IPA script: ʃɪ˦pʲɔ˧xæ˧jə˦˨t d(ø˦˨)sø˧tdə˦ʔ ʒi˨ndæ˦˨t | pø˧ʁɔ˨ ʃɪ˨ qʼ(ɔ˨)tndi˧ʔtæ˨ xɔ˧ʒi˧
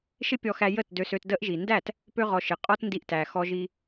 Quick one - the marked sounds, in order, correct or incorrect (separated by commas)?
incorrect, incorrect